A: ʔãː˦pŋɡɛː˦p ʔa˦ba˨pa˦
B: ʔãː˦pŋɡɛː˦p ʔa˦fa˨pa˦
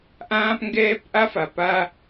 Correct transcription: B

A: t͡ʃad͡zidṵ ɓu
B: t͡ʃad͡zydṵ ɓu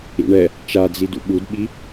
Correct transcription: A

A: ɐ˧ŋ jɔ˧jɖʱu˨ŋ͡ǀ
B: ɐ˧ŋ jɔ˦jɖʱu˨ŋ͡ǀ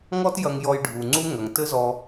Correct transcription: A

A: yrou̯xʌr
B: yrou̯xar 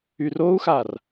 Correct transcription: B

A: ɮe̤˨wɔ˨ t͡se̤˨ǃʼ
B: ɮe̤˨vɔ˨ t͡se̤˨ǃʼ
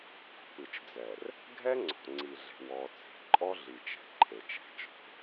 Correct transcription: A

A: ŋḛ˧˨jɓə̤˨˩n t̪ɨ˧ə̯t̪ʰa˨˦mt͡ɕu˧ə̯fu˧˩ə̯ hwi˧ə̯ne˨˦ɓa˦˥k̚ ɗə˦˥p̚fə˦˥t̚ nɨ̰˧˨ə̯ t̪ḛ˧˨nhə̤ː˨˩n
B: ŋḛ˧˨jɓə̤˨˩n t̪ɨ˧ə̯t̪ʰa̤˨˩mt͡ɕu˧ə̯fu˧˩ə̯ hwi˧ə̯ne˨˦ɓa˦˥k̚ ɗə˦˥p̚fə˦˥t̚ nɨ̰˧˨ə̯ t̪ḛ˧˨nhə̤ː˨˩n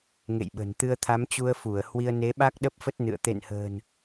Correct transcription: A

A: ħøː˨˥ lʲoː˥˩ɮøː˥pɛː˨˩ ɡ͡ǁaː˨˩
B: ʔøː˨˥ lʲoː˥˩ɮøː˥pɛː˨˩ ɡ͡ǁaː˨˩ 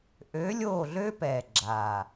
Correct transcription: B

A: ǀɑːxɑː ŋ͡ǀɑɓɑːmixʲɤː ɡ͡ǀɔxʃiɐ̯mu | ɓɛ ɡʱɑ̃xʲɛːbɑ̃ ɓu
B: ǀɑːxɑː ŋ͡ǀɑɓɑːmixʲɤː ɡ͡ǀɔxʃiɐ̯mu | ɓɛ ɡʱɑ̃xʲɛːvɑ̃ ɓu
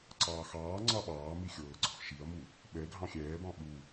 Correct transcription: A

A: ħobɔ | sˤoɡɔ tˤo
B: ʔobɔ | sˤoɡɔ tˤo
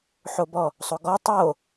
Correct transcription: A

